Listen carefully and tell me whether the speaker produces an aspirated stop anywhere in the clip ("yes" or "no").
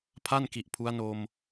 yes